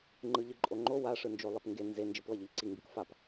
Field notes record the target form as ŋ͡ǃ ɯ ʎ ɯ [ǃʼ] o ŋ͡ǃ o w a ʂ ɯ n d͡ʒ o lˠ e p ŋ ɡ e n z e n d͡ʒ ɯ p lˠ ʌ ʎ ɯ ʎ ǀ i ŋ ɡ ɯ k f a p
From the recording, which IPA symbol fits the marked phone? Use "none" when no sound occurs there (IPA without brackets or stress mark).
ǃʼ